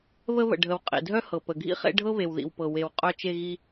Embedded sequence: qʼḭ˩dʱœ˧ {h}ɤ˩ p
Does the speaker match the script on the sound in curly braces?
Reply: yes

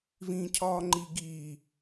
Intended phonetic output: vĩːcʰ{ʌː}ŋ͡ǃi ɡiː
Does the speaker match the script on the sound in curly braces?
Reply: no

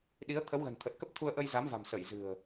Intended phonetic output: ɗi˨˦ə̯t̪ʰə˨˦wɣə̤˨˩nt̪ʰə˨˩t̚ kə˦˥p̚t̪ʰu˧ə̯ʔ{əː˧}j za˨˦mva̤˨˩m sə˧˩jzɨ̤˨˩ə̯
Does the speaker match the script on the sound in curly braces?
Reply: no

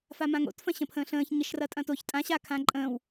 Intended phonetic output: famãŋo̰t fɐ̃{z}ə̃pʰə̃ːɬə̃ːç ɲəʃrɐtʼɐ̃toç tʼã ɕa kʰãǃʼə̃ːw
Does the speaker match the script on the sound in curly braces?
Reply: no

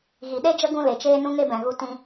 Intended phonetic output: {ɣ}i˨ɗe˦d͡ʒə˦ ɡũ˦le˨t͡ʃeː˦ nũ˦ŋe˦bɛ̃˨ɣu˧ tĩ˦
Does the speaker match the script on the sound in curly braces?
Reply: yes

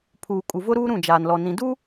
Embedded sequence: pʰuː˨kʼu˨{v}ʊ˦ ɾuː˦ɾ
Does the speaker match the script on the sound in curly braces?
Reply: yes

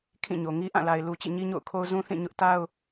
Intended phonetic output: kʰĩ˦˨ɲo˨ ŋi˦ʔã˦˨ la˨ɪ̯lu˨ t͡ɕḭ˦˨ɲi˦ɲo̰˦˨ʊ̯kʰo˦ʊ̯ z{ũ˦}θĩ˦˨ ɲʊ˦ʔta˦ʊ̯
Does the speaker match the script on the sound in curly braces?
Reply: yes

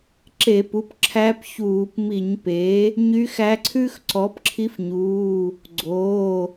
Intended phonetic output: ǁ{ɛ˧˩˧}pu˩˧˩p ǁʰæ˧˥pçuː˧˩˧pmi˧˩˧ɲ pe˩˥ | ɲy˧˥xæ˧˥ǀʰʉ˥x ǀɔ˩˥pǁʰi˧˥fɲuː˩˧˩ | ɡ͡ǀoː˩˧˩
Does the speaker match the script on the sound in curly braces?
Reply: no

